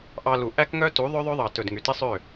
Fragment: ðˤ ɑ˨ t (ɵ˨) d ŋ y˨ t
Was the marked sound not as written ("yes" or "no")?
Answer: no